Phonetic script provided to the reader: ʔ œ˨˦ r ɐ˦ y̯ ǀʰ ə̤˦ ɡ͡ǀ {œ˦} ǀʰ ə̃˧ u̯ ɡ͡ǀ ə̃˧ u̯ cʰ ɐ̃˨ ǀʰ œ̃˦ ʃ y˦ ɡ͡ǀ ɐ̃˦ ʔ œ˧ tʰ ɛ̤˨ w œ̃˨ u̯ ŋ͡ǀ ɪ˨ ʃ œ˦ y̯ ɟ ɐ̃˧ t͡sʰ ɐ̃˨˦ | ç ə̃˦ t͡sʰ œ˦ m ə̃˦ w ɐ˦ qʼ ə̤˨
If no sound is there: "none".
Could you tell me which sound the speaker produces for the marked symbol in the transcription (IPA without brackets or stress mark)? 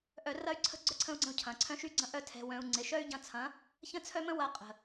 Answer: œ˦